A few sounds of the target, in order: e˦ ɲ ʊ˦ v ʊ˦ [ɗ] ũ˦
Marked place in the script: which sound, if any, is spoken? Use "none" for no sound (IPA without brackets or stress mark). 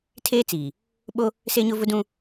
d